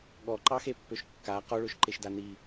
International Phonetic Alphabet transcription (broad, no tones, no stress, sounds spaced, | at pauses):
ɠ ɔ ǃ ɑ x e pː ø ʃ kː a q ɔ ɭ ø ʃ ǃ e ʃ d a n i